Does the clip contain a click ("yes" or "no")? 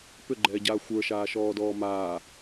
yes